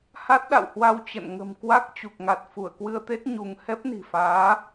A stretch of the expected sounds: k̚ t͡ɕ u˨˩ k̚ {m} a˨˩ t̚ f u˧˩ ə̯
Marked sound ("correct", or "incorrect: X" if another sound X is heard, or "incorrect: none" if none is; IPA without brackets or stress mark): incorrect: ŋ